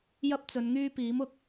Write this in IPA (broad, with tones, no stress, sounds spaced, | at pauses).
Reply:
j ɐ˥ p̚ t͡s ɵ˨˧ n ŋ yː˥ p iː˨˥ m ʊ˨˥ k̚